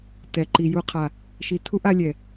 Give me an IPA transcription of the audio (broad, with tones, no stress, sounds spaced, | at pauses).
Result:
t ɛ˨ ǃ i˨ j u˨ qʰ a˨ | ʃ i˨ tʰ u˦ ʔ a˦ lʲ ɛ˨